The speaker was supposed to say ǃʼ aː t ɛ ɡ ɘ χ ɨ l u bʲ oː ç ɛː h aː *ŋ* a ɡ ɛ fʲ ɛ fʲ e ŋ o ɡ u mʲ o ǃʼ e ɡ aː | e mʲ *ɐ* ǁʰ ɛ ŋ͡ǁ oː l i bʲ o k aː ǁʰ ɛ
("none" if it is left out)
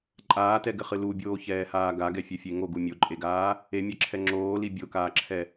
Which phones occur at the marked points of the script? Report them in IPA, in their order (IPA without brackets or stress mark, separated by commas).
ɡ, ɐ